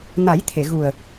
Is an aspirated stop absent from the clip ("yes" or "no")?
no